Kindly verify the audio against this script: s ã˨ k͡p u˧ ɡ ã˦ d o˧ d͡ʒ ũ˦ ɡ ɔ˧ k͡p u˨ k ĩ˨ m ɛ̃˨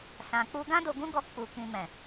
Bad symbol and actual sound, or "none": d͡ʒ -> ɡ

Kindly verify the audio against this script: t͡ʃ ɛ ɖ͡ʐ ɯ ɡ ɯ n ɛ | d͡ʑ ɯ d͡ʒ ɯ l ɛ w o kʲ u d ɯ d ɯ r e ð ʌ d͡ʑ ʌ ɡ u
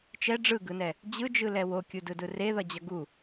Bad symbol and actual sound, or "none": none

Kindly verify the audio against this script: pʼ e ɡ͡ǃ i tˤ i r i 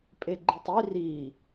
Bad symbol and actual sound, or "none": none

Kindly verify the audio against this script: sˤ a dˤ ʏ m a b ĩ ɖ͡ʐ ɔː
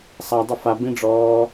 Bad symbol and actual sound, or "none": m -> f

